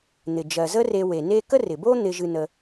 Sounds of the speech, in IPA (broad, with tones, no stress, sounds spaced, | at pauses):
n̪ ɪ˩ d͡ʒ ɜ˩ z ə˦ r e˨ w e˩ n e˦ k ə˥ r ɪ˩ b o˥ n̪ ɪ˨ ʒ ɨ˨ n ə˨